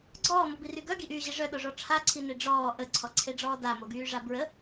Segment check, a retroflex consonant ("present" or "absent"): present